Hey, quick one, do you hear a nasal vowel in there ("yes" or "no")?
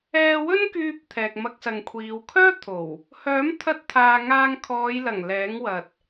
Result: no